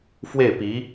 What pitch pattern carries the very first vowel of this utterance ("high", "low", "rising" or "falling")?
falling